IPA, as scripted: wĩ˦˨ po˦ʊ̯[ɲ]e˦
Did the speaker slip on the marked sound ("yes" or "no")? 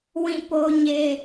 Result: no